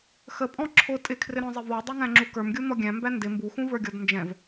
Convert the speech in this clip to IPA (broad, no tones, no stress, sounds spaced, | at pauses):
x ə pʼ ɔ̃ ǁʰ ʊ tʼ ɪ kʰ r ɪ ɾ ɔ̃ zˤ ɪ v ɔ dˤ ə˞ ŋ æ̃ ŋ͡ǁ u k ə˞ m ɡʲ u n̪ ɔ ɡʲ æ̃ m b æ n d ɪ m b u x ũ v ə˞ ɡʲ ɔ d n d͡ʒ ɛ̃ v